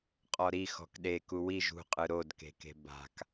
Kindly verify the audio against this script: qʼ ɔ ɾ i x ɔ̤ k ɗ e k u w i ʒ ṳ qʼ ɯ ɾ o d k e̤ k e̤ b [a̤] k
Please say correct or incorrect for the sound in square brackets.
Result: correct